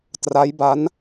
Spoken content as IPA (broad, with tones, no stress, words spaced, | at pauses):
tra˦˥jba˦˥n